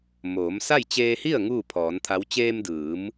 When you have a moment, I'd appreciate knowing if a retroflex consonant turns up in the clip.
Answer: no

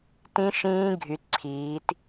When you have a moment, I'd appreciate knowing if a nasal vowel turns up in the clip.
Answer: yes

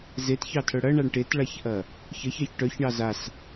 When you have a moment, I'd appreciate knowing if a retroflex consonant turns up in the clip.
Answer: yes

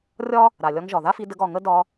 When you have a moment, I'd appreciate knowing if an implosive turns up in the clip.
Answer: no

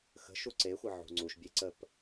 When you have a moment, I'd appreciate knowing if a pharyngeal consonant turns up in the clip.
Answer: yes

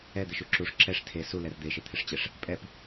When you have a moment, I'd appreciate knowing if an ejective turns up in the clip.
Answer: yes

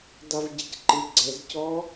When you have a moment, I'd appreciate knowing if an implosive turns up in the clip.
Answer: no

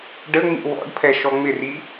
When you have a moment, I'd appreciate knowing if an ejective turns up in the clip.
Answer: no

